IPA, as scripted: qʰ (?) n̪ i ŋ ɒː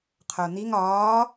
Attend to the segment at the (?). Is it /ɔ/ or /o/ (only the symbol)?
o